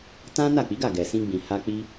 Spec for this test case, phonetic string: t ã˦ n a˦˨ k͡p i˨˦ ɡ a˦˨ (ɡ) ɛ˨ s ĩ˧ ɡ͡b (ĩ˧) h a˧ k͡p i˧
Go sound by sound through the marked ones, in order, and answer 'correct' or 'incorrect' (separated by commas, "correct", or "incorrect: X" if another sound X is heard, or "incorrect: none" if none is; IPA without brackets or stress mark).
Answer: correct, incorrect: ĩ˨